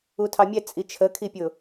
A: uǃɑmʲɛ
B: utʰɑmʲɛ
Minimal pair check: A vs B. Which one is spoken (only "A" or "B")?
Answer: B